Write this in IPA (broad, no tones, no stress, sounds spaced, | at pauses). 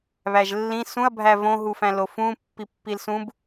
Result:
β æ ʒ lː ĩ s ũ ɐ̯ bʱ æ v õ ɦ u f æ̃ l o f ũ pː i pː i l s ũ b